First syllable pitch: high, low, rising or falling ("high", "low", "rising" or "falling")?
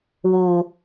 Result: low